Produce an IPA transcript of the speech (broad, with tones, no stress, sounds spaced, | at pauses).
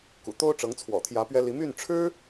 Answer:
k ṵ˨˩ t̪ o˥ ʊ̯ ʈ͡ʂ ɤ˧˥ ŋ t͡sʰ w ɔ̰˨˩ t̪ʰ j ä˧˥ p ɥ ɛ˥ l i˧˥ m y˥˩ n ʈ͡ʂʰ ɻ̩˥